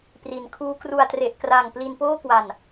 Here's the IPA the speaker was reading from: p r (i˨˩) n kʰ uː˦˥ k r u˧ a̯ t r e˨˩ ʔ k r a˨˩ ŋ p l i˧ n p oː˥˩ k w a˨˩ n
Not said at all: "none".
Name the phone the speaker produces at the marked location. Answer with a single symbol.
i˩˦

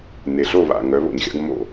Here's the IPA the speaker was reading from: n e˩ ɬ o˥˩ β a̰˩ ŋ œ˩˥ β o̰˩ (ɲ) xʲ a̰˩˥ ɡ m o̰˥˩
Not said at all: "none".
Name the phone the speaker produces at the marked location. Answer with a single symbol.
ɲ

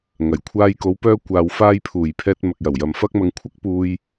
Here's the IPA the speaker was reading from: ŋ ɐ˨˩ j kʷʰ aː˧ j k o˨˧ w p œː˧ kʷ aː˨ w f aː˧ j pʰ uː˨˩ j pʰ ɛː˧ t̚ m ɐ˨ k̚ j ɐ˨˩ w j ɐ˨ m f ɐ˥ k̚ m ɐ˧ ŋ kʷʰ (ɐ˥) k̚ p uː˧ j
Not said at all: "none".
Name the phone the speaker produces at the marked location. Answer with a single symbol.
ɐ˥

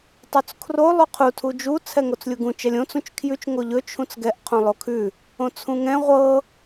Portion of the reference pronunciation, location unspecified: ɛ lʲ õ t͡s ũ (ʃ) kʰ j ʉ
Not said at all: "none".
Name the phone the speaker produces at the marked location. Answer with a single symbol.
t͡ʃ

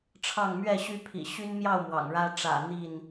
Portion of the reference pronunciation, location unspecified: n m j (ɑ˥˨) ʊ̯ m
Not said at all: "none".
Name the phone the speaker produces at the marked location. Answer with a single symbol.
ɑ˥˨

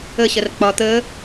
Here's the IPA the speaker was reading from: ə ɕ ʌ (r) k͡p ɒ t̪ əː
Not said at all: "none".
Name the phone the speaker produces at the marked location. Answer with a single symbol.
r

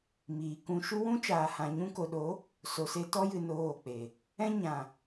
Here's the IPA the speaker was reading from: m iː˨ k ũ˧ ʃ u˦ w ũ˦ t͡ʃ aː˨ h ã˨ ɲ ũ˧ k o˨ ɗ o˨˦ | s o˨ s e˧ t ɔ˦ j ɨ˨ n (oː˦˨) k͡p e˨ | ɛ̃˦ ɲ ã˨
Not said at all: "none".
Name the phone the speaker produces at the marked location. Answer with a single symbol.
oː˦˨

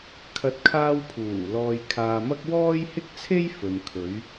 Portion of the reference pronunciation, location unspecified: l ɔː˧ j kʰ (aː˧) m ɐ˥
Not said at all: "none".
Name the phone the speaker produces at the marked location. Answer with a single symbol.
aː˧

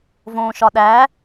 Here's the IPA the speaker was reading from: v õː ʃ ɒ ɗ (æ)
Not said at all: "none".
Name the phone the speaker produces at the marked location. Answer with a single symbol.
æ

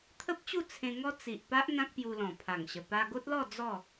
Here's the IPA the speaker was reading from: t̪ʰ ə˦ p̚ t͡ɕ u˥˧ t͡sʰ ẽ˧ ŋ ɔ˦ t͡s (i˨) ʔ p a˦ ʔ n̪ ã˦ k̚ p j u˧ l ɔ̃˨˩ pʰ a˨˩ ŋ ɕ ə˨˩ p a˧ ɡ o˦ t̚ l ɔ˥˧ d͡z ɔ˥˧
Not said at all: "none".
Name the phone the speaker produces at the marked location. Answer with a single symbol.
i˨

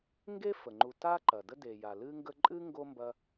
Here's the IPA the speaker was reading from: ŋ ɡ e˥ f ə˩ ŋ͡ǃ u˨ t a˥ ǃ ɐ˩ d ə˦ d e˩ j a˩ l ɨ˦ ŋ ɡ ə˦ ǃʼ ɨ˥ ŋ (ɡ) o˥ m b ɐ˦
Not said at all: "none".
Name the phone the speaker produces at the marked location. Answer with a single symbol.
ɡ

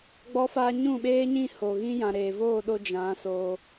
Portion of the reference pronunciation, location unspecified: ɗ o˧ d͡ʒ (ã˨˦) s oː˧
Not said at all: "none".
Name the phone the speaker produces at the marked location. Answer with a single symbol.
ã˨˦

